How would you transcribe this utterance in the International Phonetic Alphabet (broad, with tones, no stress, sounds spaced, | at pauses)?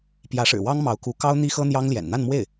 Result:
p j ä˧˥ ʂ ɻ̩˨˩ w ɑ˥ ŋ m ɑ˧˥ ʊ̯ k u˧˥ k ɑ˥ ʊ̯ n̪ i˥ x ɤ˥ n̪ j ɑ˥ ŋ l j ɛ̰˨˩ n n̪ a˥˧ n m w e˥˩ ɪ̯